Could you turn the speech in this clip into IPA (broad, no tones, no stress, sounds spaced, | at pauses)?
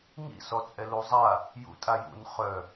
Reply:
ŋ ḭ s ɔ t͡sʼ ɛ l u zˤ a | j ṵ tʼ a j ṵ n χ œ